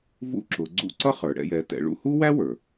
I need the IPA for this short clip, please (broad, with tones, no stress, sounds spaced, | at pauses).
v ṵ˧˥ ǁ ʊ˩˧ ɡ͡ǀ ṵ˧ ǀ ʌ˥ χ ə˞˩ ɽ ɛ̰˧ j ɛ˩˧ t ɛ̰˩˧ ɭ ṵ˧ h u˥ w æ˥ w ə˞˩